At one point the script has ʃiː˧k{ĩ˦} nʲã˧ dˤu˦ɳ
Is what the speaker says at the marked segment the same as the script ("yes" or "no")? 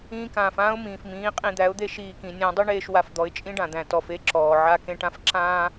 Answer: no